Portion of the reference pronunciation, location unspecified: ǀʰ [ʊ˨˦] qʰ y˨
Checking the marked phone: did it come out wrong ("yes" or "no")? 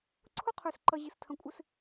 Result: yes